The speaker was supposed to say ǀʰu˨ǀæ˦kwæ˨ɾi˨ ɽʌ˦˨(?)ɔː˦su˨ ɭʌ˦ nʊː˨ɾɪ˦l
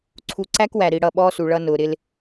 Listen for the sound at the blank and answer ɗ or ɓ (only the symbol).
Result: ɓ